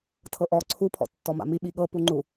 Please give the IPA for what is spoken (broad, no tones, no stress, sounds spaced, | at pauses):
tʰ ɤ ʔ ɔ ǀʰ u pʰ ɔ̰ tː ɔ m a̰ m i ɓ i ɠ ɤ p u ŋ͡ǃ u